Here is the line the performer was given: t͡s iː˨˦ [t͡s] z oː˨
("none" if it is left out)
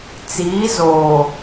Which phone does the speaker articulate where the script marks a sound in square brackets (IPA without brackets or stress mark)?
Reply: none